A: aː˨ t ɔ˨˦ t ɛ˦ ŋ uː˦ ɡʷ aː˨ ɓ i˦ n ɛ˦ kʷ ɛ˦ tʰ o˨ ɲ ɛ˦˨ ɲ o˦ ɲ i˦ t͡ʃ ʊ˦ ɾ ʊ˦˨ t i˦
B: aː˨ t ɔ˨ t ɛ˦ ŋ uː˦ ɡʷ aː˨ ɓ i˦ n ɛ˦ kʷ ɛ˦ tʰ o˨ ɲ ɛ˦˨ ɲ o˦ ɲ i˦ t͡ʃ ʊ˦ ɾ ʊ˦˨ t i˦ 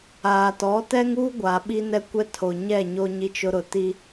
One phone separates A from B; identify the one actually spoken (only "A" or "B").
A